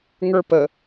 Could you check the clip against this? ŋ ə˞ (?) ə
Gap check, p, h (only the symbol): p